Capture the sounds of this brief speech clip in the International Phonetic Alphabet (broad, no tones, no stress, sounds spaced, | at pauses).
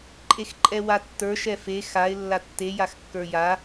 ǃʼ e x ǃʼ ɛ w a tː ə˞ ʃ ɛ f e x a ɪ̯ lː a tː e j a x kː ə˞ j a